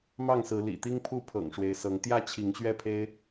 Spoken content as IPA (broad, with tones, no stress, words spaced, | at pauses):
mɑ˥˨ŋsɹ̩˨˦ lḭ˨˩ t̪i˦ŋpʰu˥˨pʰɤ̰˨˩ŋ ʂwe˨˦ɪ̯sɤ˨˦ŋ t̪jä˥˨t͡ɕʰi˨˦ŋɕɥɛ˥˨pʰe˦ɪ̯